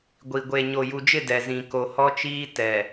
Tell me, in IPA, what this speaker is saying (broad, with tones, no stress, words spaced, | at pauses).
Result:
ɡʷi˨ ɡʷe˨ ɲo˨ju˨d͡ʒɪ˦˨ dɛ˨zĩ˨ ko˨hɔ˦t͡ʃiː˦ tɛ˨